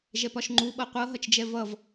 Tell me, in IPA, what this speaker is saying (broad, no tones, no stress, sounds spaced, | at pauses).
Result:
ʒ ɛ p ɒ ʃ ŋ͡ǃ u ɓ ɤ qʷ ɤ ɦ ʌ t͡ʃ d͡ʒ ɛ v ʌ v